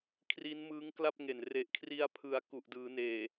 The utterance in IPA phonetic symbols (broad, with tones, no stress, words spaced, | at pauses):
kʰri˦˥nmɯː˦˥ŋkla˥˩p̚ŋe˨˩n re˨˩ʔkʰri˧a̯pʰɯ˨˩a̯ ku˨˩ʔdɯː˩˦neː˨˩